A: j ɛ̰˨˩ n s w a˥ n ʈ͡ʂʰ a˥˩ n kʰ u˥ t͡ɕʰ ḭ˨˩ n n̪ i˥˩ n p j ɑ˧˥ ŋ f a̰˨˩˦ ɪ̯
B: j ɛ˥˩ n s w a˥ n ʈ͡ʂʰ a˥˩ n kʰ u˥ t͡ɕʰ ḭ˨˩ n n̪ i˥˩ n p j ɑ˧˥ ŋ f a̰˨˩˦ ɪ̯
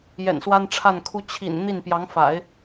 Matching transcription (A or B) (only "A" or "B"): A